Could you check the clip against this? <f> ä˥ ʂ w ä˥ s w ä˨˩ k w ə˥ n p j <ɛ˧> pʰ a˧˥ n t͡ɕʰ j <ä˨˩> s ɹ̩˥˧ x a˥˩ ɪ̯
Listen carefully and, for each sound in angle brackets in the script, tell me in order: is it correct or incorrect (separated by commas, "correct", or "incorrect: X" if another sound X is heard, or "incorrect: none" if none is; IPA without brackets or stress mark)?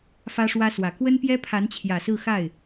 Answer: correct, incorrect: ɛ˥, correct